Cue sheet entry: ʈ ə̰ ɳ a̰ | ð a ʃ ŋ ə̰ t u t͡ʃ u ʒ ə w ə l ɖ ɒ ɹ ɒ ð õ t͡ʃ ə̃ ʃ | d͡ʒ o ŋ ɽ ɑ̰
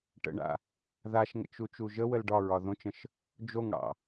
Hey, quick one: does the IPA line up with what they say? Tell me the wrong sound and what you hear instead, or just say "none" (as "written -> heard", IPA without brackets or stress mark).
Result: t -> t͡ʃ